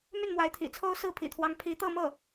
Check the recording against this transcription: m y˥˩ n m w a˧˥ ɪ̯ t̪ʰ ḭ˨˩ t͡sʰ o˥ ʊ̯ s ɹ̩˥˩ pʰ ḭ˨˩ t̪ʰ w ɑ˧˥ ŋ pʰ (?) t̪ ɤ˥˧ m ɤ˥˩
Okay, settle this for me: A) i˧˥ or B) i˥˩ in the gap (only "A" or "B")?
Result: A